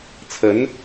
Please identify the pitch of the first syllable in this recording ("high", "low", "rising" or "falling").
rising